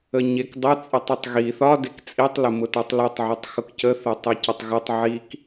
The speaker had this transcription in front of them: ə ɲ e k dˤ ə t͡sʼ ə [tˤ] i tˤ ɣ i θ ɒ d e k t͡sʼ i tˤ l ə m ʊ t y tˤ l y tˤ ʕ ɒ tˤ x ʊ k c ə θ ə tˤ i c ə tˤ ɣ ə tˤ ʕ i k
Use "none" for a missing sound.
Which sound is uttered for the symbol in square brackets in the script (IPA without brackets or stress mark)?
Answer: tˤ